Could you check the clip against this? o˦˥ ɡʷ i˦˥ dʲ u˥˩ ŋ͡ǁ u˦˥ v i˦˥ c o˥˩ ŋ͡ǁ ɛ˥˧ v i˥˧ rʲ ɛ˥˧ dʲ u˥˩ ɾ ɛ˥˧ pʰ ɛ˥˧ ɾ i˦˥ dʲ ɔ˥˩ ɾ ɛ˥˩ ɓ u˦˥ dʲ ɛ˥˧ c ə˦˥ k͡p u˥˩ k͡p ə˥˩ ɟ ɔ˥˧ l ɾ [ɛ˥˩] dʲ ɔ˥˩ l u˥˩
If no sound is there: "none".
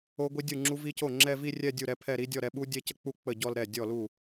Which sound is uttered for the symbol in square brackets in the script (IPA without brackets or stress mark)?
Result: ɛ˥˩